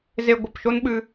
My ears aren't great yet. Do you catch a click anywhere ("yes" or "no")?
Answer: no